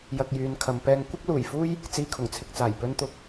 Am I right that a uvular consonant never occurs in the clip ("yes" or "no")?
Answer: yes